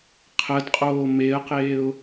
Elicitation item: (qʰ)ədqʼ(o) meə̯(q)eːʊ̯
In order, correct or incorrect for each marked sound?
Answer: correct, incorrect: oː, correct

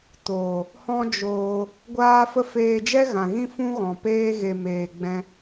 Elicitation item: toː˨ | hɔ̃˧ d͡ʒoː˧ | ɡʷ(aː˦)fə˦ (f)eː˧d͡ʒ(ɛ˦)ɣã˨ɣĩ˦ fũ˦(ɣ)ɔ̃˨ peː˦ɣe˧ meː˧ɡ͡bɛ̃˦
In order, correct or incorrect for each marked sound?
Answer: correct, correct, correct, correct

